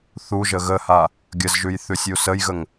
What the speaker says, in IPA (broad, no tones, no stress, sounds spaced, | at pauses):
θ u ʒ ə ɣ ə h a | ɡʲ ə z ʒ ʉ j θ ʉ sʲ u s ə j ɣ ə ŋ